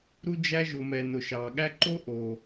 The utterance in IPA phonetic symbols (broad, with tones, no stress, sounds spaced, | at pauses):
ɾ u˧ d͡ʒ æ˧ ʒ ʊ˨ m ɛ˨ n ʊ˨ ʃ ɑ˨ ɠ æ˦ ǃ o˦ ʔ o˨